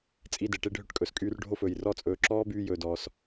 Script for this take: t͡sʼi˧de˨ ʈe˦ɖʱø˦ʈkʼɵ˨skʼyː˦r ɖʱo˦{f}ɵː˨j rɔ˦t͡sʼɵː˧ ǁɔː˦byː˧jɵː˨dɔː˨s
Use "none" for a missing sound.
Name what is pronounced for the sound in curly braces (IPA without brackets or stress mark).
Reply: f